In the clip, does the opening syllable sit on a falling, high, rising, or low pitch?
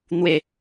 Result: falling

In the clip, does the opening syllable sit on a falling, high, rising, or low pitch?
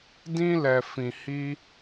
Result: high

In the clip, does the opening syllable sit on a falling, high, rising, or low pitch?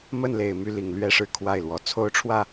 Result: falling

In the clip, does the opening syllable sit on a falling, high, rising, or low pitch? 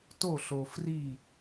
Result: falling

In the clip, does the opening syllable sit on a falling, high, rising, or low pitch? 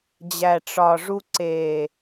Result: low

